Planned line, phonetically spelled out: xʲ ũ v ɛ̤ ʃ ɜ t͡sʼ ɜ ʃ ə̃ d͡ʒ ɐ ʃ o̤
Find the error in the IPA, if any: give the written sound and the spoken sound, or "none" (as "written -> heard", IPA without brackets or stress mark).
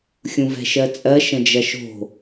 none